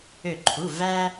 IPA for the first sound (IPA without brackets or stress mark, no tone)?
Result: ø